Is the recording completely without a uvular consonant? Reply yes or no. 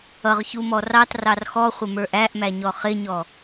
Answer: no